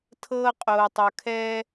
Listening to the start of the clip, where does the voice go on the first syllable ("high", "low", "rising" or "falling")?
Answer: high